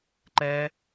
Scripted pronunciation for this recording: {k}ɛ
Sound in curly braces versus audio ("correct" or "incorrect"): incorrect